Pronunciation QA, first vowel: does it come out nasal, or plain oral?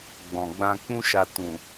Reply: nasal